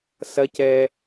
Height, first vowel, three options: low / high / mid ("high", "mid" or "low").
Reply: low